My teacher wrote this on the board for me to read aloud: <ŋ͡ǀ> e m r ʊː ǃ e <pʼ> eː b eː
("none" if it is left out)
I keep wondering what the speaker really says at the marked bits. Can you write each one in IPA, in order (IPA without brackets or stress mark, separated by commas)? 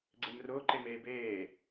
ɡ͡ǀ, m